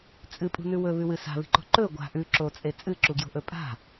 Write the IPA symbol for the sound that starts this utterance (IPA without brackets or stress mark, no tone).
t͡sʼ